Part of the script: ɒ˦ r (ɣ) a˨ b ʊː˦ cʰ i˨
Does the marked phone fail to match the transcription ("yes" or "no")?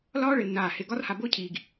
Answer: yes